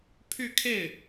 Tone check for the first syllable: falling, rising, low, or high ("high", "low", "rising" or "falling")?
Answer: falling